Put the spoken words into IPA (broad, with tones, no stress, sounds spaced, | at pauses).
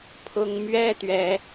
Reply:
pʰ ʊ˦ ŋ m ɥ ɛ˦ t̪ ɥ ɛ˦